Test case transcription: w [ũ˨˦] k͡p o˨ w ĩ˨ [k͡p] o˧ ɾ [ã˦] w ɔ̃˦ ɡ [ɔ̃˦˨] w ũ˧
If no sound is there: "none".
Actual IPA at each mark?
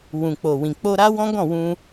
ũ˨, k͡p, a˦, ɔ̃˦˨

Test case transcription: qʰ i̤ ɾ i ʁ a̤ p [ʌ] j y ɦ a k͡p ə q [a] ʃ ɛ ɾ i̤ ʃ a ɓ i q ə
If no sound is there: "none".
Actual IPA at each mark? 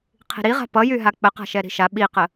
ʌ, a̤

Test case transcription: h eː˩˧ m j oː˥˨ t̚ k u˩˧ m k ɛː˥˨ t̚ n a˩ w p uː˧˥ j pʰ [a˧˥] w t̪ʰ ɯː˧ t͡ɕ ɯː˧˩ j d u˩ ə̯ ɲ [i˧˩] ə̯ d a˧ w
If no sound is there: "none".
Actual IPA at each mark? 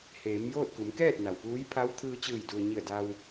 a˧˥, i˧˩

